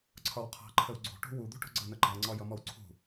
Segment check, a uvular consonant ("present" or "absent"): present